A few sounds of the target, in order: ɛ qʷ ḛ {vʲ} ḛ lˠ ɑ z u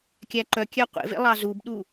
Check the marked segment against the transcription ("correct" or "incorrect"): incorrect